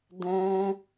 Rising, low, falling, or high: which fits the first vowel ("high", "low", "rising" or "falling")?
high